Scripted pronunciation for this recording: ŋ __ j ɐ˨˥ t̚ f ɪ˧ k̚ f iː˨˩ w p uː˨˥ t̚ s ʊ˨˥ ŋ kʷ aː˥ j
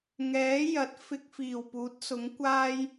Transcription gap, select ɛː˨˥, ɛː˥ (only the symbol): ɛː˨˥